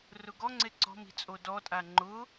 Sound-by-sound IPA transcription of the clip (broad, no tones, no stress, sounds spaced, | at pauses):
r ʊ ɡ ɔ ŋ͡ǀ e ǀ ɔ̤ m i̤ t͡sʼ o d ɔ tʼ a ŋ͡ǃ ʊ